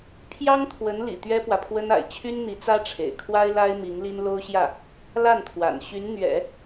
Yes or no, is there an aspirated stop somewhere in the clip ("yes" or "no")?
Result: yes